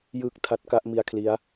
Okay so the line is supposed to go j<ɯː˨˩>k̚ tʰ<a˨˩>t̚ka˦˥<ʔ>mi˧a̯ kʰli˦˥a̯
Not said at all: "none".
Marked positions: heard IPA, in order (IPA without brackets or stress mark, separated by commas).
ɯː˨˩, a˦˥, ʔ